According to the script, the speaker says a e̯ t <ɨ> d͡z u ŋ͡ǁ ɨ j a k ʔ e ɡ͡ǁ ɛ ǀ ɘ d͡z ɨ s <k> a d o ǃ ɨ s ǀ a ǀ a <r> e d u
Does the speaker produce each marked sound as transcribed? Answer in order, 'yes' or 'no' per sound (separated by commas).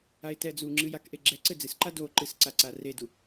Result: no, no, yes